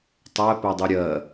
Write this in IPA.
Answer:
tˤ ɛ p ɛ dˤ u ɾʲ ɜ

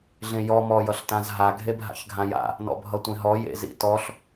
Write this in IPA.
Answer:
ɮ ẽ j ɔ m ɔ j ʌ ɬ t ã z ɦ a ɡʱ e bʱ a̰ ç ɡʱ ã j a̰ | n ɔ̰ bʱ ʌ tʷ ẽ ɦ ɔ j ḛ z ḭ t ɔ ɬ

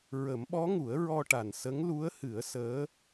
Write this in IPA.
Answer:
ɹ ə˨˩˦ m ɓ ɔ˧˥ ŋ u˨˩˦ ə̯ ɹ ɔ˧ ʈ a˨˩ n s ə˧˥ ŋ l u˧˥ ə̯ h ɨ˨˩˦ ə̯ s əː˧˥

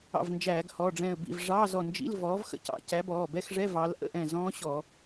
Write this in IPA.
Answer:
ɑ̰˧˩ v n d͡ʒ æː˧˩˧ ɡ h ɔ˩˧˩ ɖ͡ʐ ɛ̃˧˩ ə̯ b ḭ˧˩ v ʐ ɑ˧˥˧ z ɔ˧˩ n d͡ʒ ḭ˧˥˧ l v ɔː˨˥ v x ə̰˦˥ c ɑ̰˧˩˧ c æ˨˥ b ɔː˩˧˩ b ɛ˦˥ x ʐ ɛ˧˥˧ v ɑ˨˥ l ʔ ə̰˧˥˧ ʔ ɛ̃˧˩ z ɔ̃ː˦˥ ɕ ɔ˧˩˧

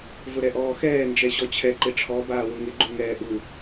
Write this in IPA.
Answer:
v ʊ ɾ ɛ ʔ ɔː x ɛː n d͡ʒ ɛ ɕ ɔ t͡ɕʰ ɛ ǃ ɪ ʈ͡ʂʰ ɔ b aː w ʊ ŋ ɪ ɡ͡ǃ u ŋ ɛː ʔ u

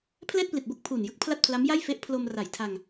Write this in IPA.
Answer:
pʰ l ɛː˥˩ t̚ p l i˨˩ t̚ b o˥˩ k̚ pʰ uː˨˩ n j ɯ˦˥ k̚ pʰ l a˥˩ t̚ pʰ l a˦˥ m j a˥˩ j f e˦˥ ʔ pʰ l o˧ m r a˨˩ j tʰ a˧ ŋ

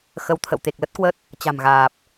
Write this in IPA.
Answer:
x ə˨˦ w t̪ʰ ə̰˧˨ w t̪ e˨˩ k̚ l ə˦˥ t̚ k w ə˦˥ t̚ | t͡ɕ a̤˨˩ m ɣ aː˨˩ p̚

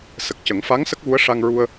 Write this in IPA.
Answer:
s ə˨˩ k̚ c ə˨˩˦ ŋ f a˧˥ ŋ s ə˦˥ k̚ ɣ u˧˥ ə̯ ʂ a˧ ŋ ɹ u˧ ə̯

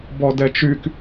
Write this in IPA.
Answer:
b ɔ d ɛ t͡ʃ y k

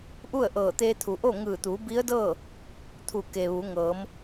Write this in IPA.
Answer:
ʔ u˥˨ ə̯ ʔ ɤː˧˩ t̪ eː˧ t̪ʰ u˩ ʔ o˥˨ ŋ ɯː˧˩ t̪ u˩˧ b i˧˥ ə̯ d ɤː˥˨ | t̪ʰ u˧˩ k e˩ ʋ u˩˧ ŋ ɤː˩˧ m

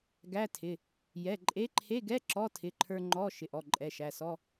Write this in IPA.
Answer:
ɡ æ˧˥˧ tʰ ɪ˩˧˩ | j ɛ˩˧˩ ǃʼ e˧˥ ǃʰ e˧˥˧ ɡ ɛ˧˥˧ ǁ ɔ˧˥˧ tʰ ɪ˩˧˩ ǃʰ ə˞˧ ŋ͡ǃ ɔ˧˥˧ ʃ ɪ˩˧˩ ʔ ɔ˩˧˩ ǃʼ ɛ˩˧˩ ʃ æ˩˧˩ s ɔ˧˥˧

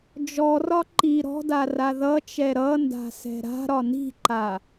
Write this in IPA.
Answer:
d͡ʒ ɔ r ɒ ǃ i ɾ ɔ̤ d a r a ð ʌ t͡ʃ ɛ ɾ ʌ n d a̤ s ɛ̤ ɾ a̤ ɾ ɒ n i̤ ǃ a

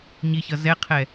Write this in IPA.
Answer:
ɲ i ç ʌ z ɛ qʰ ɛ

